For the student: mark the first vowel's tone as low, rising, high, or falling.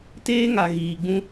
high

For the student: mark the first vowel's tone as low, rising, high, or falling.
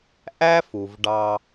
high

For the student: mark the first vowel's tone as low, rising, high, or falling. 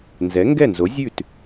rising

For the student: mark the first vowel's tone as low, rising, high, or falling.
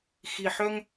low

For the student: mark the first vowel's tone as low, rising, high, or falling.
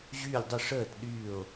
falling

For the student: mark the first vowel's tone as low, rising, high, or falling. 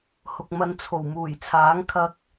low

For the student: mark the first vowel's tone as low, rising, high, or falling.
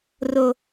high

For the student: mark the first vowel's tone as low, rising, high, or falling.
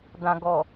low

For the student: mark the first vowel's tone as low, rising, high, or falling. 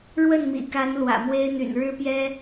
falling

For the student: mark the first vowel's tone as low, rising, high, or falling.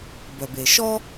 low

